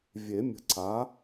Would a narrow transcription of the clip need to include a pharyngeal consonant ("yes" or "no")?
no